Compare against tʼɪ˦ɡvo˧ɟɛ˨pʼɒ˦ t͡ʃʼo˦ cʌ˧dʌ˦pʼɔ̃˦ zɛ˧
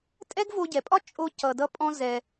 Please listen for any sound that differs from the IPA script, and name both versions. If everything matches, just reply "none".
ɪ˦ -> ɛ˦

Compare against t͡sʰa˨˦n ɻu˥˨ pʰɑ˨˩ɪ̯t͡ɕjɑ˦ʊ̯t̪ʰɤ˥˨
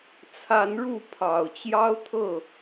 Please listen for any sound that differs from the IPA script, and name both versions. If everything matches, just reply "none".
ɪ̯ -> ʊ̯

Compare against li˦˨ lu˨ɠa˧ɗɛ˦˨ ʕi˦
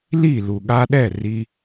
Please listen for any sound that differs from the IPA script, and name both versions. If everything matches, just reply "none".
ʕ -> r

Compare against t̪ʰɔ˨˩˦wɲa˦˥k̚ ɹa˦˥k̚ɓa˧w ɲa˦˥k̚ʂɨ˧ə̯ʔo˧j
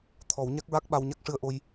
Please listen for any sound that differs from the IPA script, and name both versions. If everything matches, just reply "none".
none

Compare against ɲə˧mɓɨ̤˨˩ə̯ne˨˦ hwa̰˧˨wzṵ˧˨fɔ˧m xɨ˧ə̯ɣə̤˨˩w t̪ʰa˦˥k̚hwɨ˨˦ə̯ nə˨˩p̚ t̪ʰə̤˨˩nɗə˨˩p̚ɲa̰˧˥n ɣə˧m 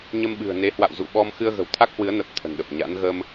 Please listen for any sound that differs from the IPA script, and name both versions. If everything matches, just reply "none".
f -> ɓ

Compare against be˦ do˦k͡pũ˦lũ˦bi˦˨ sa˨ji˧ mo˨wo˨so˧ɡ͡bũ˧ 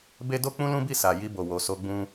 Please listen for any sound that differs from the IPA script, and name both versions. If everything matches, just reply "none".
m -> b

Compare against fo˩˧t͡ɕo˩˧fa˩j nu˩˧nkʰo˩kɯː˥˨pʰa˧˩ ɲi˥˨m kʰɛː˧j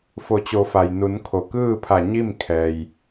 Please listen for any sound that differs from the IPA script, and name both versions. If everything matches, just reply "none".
none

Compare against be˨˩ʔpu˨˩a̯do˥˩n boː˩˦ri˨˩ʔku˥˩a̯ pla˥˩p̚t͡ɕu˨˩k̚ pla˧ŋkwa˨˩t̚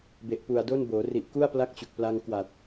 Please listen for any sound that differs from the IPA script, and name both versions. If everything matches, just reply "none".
p̚ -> k̚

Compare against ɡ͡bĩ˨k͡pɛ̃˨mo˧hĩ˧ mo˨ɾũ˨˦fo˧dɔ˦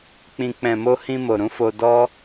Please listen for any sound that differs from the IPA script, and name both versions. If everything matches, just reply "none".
ɡ͡b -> k͡p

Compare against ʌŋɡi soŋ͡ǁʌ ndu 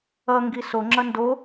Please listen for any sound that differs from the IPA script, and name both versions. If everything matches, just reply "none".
u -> o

